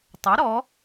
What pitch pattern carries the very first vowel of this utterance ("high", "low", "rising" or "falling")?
rising